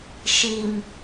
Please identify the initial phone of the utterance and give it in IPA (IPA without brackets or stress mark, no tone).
ʃ